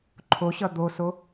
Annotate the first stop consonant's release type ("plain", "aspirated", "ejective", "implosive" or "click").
click